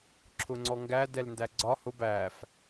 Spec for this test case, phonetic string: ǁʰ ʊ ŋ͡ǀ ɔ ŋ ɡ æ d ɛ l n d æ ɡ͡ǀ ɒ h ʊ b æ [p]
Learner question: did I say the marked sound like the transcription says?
no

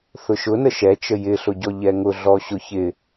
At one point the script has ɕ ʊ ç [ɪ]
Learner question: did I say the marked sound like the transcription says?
yes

